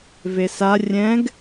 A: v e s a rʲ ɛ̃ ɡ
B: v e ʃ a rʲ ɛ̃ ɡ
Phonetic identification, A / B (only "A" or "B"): A